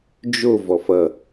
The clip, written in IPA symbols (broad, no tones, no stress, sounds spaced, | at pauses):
d͡ʒ o v ɔ f ʌ